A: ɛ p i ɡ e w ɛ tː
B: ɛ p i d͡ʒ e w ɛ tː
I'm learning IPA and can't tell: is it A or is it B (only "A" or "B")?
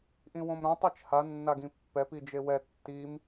B